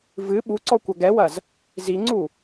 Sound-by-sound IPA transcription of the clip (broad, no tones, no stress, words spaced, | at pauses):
vɨ ɓuǀɔ kʷɐɡɛwɐz | ziŋ͡ǀu